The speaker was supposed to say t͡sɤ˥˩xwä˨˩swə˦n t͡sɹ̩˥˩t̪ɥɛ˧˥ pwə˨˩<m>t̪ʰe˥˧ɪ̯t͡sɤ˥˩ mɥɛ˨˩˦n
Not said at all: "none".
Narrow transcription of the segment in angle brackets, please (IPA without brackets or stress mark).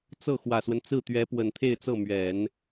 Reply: n